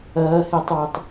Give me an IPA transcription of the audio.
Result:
ɐːhetˤwɐtˤ

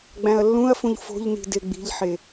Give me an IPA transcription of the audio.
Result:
ɡ͡bæ̃ɐ̯lːũɐ̯fũʎ fo̤ʎni̤ deɡ͡bi̤ʎħe

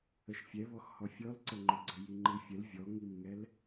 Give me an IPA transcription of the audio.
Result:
əʃfʲɛβɔxhɔ fʲɔlǀəŋ͡ǃʊɡ͡ǀə jiŋ͡ǃifʲəl vʲɔŋimŋɛl

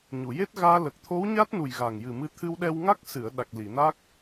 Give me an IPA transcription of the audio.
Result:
ɲu˨˩˨je˦˥t̚ɣaː˧ lə˨˩k̚t̪ʰo˧˥w ɲa˦˥t̚nu˨˩j ɣa˨˩ŋjɨ˨˩mɨ˧ t̪ʰɨ˧wɗɛ˧wŋa˦˥k̚ sɨ˨˩˨ə̯ ɗa˨˩k̚ li˨˩˨na˦˥k̚

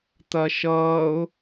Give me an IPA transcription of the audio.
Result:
t̪ɐʃʌːʊ̯

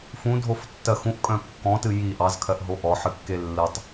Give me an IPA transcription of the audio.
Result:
fũdʱoftːɜ xũʔkʼœ̃ kːɔ̃tɨ ji ʔɑzkʰɜʔɦo ʔɔħɨkːe lːɨtˤ

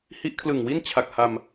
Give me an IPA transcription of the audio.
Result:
hi˦˥ʔkʰlɯ˨˩ŋwi˥˩n t͡ɕʰa˨˩k̚ha˧m

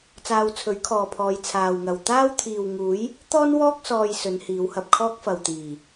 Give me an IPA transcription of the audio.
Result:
t͡saː˧wt͡sʰɵ˨˥ɥkʰɔː˨pʰɔː˨˧j t͡sʰaː˨wŋɐ˨w t̪aː˥wt̪ʰiː˨wŋuː˨˥j | t̪ɔː˥nwɔː˥k̚ sɔː˧j sɵ˨˧n hiː˨˧whɐ˧p̚kʰɔː˥k̚ fɐ˨wt̪iː˨˩

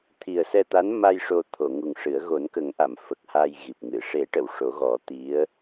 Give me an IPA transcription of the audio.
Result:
t̪ʰi˨˩ə̯sɛ˧t̪a˧˥n ma˧j ʂo˧t̪ʰo˨˩˨ŋu˨˩ŋʂɨ˨˩˦ə̯ ɣo˨˩˦nkə˨˩˦ŋʔa˨˩˨m fə˨˩k̚ha˧j ɣi˨˩p̚ŋɨ˨˩˨ ʂe˨˩˦ʈə˨˩˨w ʂo˨˩˦ɣɔ˨˩˦t̪i˧˥ə̯

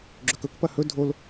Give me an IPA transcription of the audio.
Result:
ɡ͡ǁɵkɵkpɐ hɵ dʱol

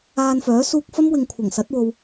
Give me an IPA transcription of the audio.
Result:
aː˧nfœː˨˥ suː˧k̚fɐ˥mwɪ˨ŋ kʷʰɐ˨˩ŋsɐ˨˥t̚ wo˧w

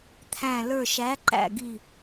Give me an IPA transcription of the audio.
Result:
t̪ʰæ̃˧˩ lə˞˧˩ʃæ˨˥ǃæ̰˧˩ɡi˧˩

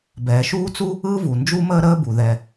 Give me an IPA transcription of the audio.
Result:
bɛː˩ʃuː˥t͡su˥ | ɯ˥ vu˩nd͡ʒu˥məː˥ ɾəː˥bu˩ ðɛ˩

